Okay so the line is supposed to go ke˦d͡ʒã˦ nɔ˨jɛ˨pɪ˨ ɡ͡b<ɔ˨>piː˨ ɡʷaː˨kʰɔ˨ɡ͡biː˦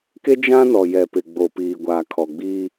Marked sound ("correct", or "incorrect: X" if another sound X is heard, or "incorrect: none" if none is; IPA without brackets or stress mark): incorrect: o˨